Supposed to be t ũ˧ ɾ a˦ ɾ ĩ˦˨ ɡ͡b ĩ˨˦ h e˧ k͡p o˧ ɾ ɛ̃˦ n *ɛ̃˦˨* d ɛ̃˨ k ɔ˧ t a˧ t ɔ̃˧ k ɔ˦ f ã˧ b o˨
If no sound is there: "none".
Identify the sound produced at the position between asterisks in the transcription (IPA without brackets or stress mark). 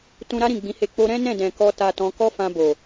ɛ̃˦˨